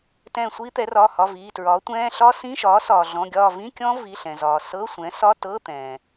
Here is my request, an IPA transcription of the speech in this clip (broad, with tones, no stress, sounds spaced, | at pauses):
t ɛ̃ː˦˨ sʷ iː˦˥ t̪ ɛ˩˥ r ɒː˩˧˩ h ɒ˩˧˩ v iː˩˧˩ t ɹ ɒː˩˥ tʷ ɛ̃ː˧˥˧ ɬ ɒ˦˥ s ĩ˧˥˧ ʃ ɒː˩˥ s ɒː˩ ɮ ɔ̃˩˧˩ ɡʲ ɒː˦˨ v ĩ˧˥˧ kʲ ɔ̃˦˥ v i˩˧˩ ɬ ɛ̃˩ z ɒː˩ s ɤ˧˥˧ sʷ ɛ̃˩˥ s ɒ˧˥˧ t ɤ˧˥˧ t̪ ɛ̃ː˩